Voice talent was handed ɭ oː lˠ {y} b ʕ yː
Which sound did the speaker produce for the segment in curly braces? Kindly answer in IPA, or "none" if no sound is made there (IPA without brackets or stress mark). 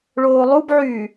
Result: u